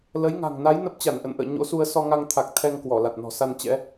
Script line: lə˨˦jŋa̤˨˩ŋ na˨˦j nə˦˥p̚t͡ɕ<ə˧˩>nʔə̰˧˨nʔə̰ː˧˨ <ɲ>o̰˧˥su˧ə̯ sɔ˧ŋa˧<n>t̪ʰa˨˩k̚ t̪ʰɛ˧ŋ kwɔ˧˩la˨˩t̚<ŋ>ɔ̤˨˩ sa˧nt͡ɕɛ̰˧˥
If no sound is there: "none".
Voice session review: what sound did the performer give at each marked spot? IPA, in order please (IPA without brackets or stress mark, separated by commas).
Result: a˧˩, ɲ, ŋ, n